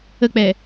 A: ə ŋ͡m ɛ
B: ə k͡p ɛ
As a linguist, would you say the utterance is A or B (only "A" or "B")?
B